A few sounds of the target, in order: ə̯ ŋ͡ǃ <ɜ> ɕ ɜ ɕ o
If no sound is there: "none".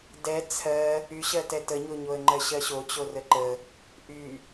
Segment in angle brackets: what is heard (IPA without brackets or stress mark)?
ɜ